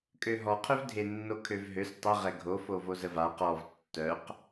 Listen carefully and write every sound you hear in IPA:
kʼ ø ɦ ɔ qʰ ø v dʱ e nː o kʰ ø v ɦ ø s tˤ ə ʁ ɛ ɡʱ o f o v o z ə v a q ɔ v tː œ q

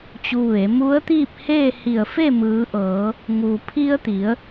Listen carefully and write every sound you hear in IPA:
t͡ɕ u˧ ʋ e˩˧ m u˧˥ ə̯ t̪ iː˥˨ p̚ h eː˥˨ h i˧˩ ə̯ f e˥˨ m ɯː˩˧ ʔ ɤː˩˧ | ŋ u˩ pʰ i˧ ə̯ t̪ i˩˧ ə̯

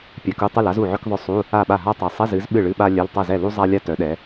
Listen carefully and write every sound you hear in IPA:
pʲ a˨˦ k u˧˥˧ tˤ ɨ˥˩ l a˥ z u˥˩ ʕ œ˥ k ðˤ œ˥˩ sˤ u˧˥˧ | a˥˩ ɓ a˥˩ ɦ a˥ tˤ ɛ˨˦ sˤ ɛ˧˥˧ z ɨ˨˦ z ɓ ɨ˥˩ ɭ ɨ˧˥˧ ɓ a˥ lʲ œ˧˥˧ l tˤ ɛ˥˩ z ɛ˥˩ l u˥ zˤ a˥ lʲ a˥ t œ˨˦ ɗ ɛ˨˦

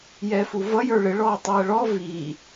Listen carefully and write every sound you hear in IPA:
j ɛː f u v ʌ j ə˞ ɭ ɪ ɭ ɔː tˤ iː ə̯ ɭ ɔ v iː

